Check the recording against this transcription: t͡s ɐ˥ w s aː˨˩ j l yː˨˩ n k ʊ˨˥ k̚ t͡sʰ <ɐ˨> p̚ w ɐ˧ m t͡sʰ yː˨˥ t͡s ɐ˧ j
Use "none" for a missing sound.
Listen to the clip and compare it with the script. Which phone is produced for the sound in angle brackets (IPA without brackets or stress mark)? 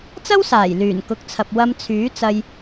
ɐ˨